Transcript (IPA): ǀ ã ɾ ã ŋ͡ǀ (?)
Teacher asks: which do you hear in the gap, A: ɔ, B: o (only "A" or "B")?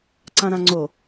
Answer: B